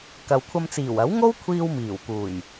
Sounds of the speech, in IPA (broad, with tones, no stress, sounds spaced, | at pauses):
k ɐ˨ w kʷʰ ɐ˧ m t͡s iː˨˩ w ɐ˨˥ w ŋ o˥ w kʷʰ iː˧ w m iː˨˩ w k uː˨˩ j